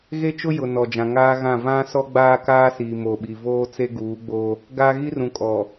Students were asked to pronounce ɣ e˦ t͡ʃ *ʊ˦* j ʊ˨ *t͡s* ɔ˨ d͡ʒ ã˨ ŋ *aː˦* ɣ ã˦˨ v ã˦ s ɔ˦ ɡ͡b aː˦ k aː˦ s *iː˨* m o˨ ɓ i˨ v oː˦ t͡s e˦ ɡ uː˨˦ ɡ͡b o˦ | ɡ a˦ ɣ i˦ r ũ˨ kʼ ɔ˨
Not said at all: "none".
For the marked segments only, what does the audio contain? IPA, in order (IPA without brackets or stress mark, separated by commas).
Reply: ʊ˦, n, aː˦, iː˨